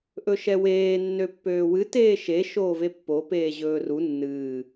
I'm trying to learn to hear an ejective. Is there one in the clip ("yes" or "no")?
no